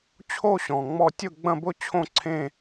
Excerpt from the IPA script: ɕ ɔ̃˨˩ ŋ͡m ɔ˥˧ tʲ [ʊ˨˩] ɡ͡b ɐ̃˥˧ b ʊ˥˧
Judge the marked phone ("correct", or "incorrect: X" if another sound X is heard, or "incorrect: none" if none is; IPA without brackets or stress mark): incorrect: ʊ˥˧